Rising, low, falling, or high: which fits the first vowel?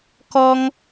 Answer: high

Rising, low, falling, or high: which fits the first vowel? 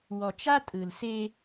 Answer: low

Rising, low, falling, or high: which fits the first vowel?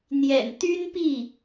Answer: low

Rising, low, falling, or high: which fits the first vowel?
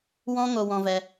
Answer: high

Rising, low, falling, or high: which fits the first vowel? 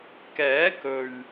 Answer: rising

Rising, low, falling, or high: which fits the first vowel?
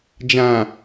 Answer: low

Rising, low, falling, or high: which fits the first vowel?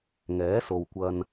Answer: rising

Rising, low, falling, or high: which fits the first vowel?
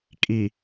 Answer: low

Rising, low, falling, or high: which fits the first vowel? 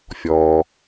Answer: low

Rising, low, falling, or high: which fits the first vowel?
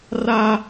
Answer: high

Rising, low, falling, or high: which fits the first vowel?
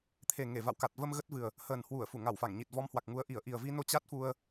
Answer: low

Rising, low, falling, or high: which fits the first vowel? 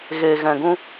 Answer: low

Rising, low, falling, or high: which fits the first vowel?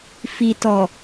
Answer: low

